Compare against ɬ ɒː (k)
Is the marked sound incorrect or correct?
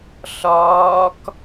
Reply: correct